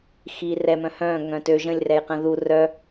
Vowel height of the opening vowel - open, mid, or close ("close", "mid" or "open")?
close